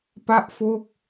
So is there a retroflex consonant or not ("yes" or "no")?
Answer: no